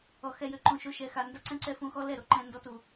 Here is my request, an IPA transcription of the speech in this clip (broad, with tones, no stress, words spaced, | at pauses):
ɔ˨ xɛ˧jø˨ǃõ˧ʃo˧ ʃɛ˨xa˨nda˦ ǀɛ̃˦ǀɛ˦fũ˧ xɔ˦lɛ˦˨ɾo˨ǃɛ̃˧ ndɔ˧tu˨